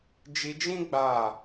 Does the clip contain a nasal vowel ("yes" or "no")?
yes